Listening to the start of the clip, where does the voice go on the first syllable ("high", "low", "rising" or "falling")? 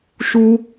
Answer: high